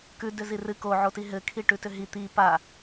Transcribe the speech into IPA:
kʉ dʏzirɨ ko ʕotiɦɘ kʰiʈʉtʏɦi t̪i pa

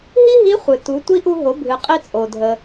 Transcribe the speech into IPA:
ɦi˥ɦi˧˥χʷɨ˩ tu˩˧ tʷi˧˥ʔu˧ɦo˩˧ bʱɨ˩ qʼi˧t͡sʼo˩ dʱə˩

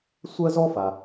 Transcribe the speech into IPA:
sʷɜ˥zɔ˥fa˩

